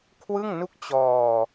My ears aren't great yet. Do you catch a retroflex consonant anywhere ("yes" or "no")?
no